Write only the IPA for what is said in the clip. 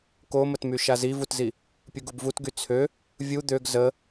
k o m ə t m y ʃ a z i v u t z i | pʲ u ɡ u b v u t ɡ y t͡sʰ ø | vʲ u d̪ ø ɡ z ə

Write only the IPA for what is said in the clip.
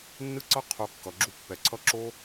nː ɯ˦ ǀ ʌ˦ qʰ o˧ kː ʌ˨ ɡ͡ǁ u˧ pː ɛ˨ ǀʰ ʌ˦ ǁ o˦

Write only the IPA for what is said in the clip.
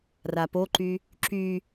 r a p o ǃ y | ǁ y

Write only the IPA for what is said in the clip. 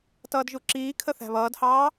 t ʌː d ʒ u ǁ iː kʰ ə θ æ̤ β ʌː d h ɑː

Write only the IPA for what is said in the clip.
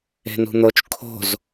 e̤ n ṳ n̪ o t͡ʃ kʰ o̤ z

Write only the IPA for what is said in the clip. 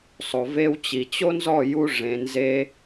sˤ o˨ v e˧ w t͡ɕ i˨ t͡ɕ o˦ n z ɔ˦˨ j u˧ ʐ ẽ˨ n z e˧

